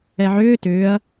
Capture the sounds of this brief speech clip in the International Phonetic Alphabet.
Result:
ɛ ʕ ʏː t ʏː ɐ̯

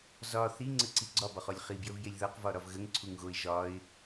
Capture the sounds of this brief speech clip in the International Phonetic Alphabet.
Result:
z ɒ θ i ŋ͡ǀ ə ǀ i ɡ͡ǀ ɒ b ɒ χ ɔ lʲ χ i b j ə v j e lʲ ð ɒ q v ɒ ɾ ɒ v ɣ ə ŋ ǀʰ u ŋ ɣ o ɪ̯ ʒ ɒ ɪ̯

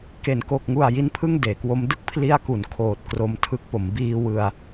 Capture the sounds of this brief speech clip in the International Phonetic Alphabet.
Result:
k e˩˦ n k o˨˩ k̚ ŋ u˨˩ a̯ j i˦˥ n pʰ ɯ˥˩ ŋ d eː˩˦ k w o˦˥ m d ɯ˥˩ k̚ pʰ l i˦˥ a̯ k u˩˦ n kʰ oː˨˩ t̚ k r o˧ m tʰ ɯ˦˥ k̚ p o˩˦ m b iː˧ w ɯ˧ a̯

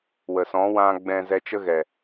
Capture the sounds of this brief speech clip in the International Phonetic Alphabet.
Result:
w ə˨ s ɔ̃˨˦ w ã˧ ɡ͡b ɛ̃˧ z ɛ˧ t͡ʃ ə˦ ɣ ɛ˨

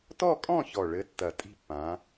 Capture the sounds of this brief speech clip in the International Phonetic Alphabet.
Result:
t ɔ˥˧ kʼ ɔ̃˥˧ ç ɔ˨˩ ɭ ɘ˨˥ tː ɐ˨˩˦ tʼ i̤˥˧ pː ã˨˥

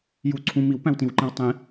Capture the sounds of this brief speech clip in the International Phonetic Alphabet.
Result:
j u ǀʰ ũ m i w p æ̃ w t ĩ w ǃ ĩ w tˤ ĩ

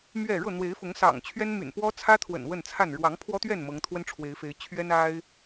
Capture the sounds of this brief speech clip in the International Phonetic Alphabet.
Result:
m ɥ ɛ˥˨ ɻ ɤ˥˨ n̪ w e˨˦ ɪ̯ f ʊ˨˦ ŋ s ɑ̰˨˩ ŋ t͡ɕʰ ɥ ɛ˦ n m y̰˨˩ n p w ɔ˦ t͡sʰ ä˦ t̪ʰ w ə̰˨˩ n w ə˥˨ n t͡sʰ a˥˨ n ɻ w ɑ˨˦ ŋ pʰ w ɔ˦ t̪ ɥ ɛ˥˨ n m ɤ˨˦ ŋ t̪ʰ w ə˦ n ʈ͡ʂʰ w e˨˦ ɪ̯ f e˨˦ ɪ̯ t͡ɕʰ ɥ ɛ˦ n a˦ ɪ̯

